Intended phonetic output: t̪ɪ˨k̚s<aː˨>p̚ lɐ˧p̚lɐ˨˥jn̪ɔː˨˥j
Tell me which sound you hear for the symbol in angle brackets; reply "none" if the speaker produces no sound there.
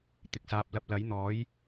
aː˨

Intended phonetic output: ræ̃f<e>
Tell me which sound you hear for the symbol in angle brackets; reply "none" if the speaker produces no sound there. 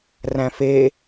e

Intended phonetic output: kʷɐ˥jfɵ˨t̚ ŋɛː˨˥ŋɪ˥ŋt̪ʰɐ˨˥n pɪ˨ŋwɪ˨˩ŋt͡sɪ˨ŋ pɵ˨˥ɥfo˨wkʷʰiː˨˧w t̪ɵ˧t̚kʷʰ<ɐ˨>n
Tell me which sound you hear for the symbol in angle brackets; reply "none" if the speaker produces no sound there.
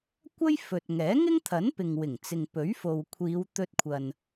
ɐ˨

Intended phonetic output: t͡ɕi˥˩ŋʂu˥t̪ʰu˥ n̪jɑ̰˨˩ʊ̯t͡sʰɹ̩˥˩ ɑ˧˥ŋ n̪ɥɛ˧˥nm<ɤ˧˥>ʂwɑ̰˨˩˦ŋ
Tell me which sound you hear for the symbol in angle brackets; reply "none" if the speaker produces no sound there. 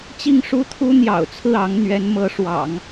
ɤ˧˥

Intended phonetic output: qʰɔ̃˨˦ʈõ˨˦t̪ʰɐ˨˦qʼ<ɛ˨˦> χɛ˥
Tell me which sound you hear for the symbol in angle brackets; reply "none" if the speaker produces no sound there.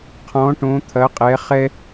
ɛ˨˦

